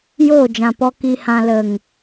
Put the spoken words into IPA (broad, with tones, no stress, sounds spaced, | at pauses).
j oː˦˨ d͡ʒ ã˨ p ɔ˧ k i˧ h ã˧ l ə˨ ŋ